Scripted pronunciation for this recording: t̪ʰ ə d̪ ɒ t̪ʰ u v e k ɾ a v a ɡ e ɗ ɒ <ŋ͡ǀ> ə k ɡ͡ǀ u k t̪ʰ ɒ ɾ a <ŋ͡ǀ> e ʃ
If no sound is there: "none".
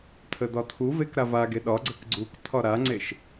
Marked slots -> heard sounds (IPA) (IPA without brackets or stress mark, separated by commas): ɡ͡ǀ, ŋ͡ǀ